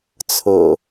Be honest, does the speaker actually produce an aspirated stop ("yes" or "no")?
yes